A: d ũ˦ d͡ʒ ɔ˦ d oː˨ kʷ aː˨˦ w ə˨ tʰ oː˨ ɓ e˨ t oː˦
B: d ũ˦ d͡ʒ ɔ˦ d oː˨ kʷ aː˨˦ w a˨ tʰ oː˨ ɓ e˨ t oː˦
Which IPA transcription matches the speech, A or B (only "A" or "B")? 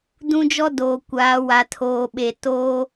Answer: B